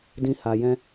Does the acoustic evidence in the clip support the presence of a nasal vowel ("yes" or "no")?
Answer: yes